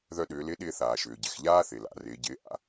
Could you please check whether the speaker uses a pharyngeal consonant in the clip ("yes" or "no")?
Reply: no